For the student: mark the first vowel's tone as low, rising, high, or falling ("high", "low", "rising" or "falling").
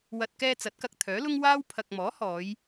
low